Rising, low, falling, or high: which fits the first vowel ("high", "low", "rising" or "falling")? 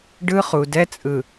high